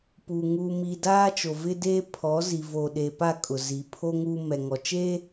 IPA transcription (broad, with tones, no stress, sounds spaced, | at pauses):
p u˨ ŋ u˨ m i˨ d aː˦ t͡ʃ o˨ v ɪ˦ d eː˦ pʰ ɔ˨˦ z i˨ v o˨ ɗ e˨ p a˦˨ kʼ ʊ˨ z i˨ pʰ o˦ ŋ u˦ m ɛ˨ ŋ ɔ˨ t͡ʃ e˦